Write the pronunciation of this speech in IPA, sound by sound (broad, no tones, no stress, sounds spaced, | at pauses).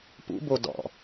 p ṵ b o d ɔ̰